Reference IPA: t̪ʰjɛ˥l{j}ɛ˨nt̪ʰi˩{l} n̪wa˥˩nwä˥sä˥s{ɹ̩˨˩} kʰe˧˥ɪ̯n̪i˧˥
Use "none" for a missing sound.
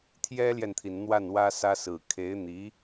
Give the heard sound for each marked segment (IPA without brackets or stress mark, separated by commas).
j, n, ɹ̩˨˩